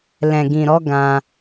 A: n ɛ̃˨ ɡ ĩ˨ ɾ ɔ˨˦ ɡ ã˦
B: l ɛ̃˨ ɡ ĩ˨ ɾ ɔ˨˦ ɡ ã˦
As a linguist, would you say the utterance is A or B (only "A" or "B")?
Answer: B